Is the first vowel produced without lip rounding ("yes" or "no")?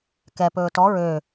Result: yes